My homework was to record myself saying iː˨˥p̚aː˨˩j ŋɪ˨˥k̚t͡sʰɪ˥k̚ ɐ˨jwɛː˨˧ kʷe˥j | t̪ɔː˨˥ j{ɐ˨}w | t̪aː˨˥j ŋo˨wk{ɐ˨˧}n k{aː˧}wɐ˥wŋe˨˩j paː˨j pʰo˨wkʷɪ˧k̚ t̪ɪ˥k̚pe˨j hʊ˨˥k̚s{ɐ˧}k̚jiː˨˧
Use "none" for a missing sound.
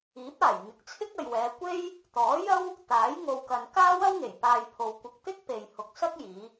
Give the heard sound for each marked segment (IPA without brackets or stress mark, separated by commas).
ɐ˥, ɐ˨, aː˥, ɐ˥